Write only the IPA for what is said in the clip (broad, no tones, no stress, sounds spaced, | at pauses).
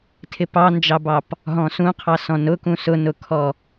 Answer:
tʰ ɪ p ɑ n d͡ʒ ɑ b ɑ p | ɦ ɔ̃ s ũ qʰ ɑ s ɔ̃ n ʊ k ũ s ʊ n ʊ kʰ ɔ